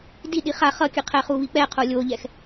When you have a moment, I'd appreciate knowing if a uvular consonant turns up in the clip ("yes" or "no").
yes